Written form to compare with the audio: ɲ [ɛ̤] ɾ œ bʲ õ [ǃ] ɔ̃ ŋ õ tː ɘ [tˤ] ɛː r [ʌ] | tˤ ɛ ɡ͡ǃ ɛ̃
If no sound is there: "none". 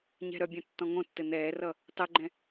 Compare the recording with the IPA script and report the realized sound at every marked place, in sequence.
ɛ̤, tː, n̪, ʌ

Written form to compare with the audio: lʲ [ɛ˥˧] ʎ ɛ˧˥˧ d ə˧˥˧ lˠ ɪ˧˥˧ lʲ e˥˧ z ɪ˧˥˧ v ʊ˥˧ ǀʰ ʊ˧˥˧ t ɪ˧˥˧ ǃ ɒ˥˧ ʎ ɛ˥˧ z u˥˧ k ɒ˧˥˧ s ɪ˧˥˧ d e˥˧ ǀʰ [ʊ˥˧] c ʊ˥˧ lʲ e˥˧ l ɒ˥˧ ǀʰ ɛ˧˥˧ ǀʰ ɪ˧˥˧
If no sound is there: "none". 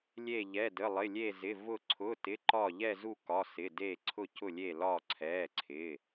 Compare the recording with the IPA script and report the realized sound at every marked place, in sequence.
e˥˧, ʊ˥˧

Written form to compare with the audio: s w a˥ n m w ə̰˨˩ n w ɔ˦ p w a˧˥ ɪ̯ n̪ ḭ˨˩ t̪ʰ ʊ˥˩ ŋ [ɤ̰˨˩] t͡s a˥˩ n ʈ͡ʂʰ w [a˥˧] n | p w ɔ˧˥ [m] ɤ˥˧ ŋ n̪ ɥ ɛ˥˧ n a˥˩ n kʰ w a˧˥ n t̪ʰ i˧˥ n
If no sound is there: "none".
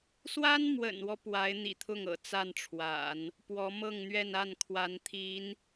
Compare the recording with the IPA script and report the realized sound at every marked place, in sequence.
ɤ̰˨˩, a̰˨˩˦, m

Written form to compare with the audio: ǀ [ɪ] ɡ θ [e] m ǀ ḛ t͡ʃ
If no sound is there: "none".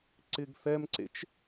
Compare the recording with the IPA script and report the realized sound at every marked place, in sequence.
ɪ, ɛ

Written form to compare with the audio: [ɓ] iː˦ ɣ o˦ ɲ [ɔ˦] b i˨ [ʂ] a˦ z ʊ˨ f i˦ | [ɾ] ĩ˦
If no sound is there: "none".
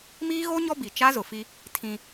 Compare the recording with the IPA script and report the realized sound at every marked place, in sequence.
m, ɔ˦, t͡ʃ, tʰ

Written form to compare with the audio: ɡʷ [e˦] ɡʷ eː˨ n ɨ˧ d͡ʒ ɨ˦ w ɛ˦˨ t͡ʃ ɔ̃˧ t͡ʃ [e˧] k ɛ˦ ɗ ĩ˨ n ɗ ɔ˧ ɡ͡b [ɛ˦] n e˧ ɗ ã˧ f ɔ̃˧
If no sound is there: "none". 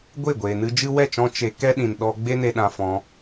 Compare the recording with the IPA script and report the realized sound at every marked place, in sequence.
e˦˨, e˧, e˦

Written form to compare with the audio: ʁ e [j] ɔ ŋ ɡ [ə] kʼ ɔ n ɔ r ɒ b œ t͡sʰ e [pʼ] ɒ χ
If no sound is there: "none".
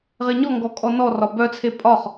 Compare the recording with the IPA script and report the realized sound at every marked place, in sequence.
ɲ, ɔ, pʼ

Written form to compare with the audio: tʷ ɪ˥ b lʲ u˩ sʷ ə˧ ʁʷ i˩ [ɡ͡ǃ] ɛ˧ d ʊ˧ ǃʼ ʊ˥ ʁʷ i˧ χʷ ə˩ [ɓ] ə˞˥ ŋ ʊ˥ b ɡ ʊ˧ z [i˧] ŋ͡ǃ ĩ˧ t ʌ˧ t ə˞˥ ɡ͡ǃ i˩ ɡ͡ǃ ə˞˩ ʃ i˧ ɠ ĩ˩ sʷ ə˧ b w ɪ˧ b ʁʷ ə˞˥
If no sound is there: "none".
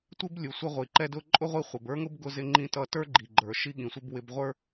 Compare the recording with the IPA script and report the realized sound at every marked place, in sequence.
ǃ, b, ɪ˧

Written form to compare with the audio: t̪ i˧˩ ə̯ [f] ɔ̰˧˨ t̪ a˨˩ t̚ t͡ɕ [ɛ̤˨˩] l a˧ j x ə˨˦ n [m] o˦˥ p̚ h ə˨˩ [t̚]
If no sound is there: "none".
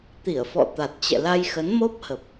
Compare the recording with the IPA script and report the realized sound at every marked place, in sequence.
f, ɛ̰˧˨, m, p̚

